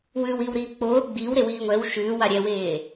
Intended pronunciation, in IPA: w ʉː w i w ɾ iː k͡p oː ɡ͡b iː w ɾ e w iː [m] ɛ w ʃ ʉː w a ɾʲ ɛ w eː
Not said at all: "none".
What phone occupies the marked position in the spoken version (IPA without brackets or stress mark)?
ŋʷ